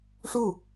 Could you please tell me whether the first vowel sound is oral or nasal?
oral